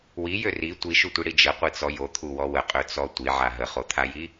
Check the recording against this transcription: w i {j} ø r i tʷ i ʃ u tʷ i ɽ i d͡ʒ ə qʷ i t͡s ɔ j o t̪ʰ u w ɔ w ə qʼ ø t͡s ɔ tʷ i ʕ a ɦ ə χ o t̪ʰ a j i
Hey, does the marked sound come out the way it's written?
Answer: yes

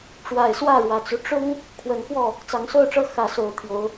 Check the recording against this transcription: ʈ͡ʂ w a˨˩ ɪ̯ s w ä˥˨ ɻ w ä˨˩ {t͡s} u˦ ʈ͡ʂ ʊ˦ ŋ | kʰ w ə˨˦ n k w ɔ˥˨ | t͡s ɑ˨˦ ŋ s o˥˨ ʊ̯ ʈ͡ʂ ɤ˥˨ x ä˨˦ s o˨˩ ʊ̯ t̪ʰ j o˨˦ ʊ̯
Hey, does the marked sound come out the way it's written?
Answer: yes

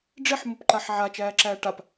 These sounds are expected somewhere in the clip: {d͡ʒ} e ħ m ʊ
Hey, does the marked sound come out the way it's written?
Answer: no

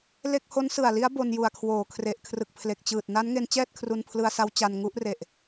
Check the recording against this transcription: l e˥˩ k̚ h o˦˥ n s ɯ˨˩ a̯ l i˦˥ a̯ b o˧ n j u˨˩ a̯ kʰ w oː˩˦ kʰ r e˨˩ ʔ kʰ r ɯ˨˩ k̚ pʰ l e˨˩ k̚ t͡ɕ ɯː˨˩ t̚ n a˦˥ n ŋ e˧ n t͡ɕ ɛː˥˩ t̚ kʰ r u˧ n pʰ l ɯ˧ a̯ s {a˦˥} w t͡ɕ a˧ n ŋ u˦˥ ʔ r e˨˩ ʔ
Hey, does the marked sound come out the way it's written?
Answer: yes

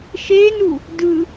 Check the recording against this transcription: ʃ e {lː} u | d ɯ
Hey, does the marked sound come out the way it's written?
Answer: no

